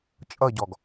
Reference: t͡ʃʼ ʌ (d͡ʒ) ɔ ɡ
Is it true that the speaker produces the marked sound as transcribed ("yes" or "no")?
no